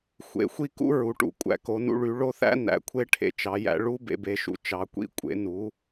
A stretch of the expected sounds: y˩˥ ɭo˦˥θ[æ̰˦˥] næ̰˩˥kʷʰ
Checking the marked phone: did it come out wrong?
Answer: no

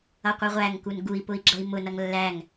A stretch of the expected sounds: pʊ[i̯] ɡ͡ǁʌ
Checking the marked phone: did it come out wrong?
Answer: no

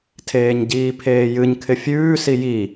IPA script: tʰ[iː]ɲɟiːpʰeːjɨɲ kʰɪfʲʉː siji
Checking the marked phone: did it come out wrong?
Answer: yes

